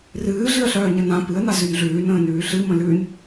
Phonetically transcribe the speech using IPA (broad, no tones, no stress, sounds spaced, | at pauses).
r ɨː ɮ ɨ ə̯ ɬ œː ɲ ə n ã p ɨ ə̯ n a z ʉ n ɮ ʉː n ə̃ː n ʉː ɬ ɨ m ə̃ l ʉ n